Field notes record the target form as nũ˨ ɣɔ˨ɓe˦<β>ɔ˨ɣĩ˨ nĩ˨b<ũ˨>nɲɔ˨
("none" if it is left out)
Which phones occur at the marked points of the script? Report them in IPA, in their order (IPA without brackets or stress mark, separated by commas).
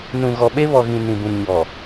β, ũ˨